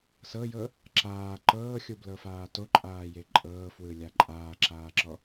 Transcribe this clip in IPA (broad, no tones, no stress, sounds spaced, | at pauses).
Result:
s ɤ j ɤ | ǁ aː ǃ ɤː xʲ u b l ɤ f aː t o ǃʼ aː j e ǃʼ ɤː f w ɯ lʲ a ǃʼ aː ǁ aː ǁ ɔ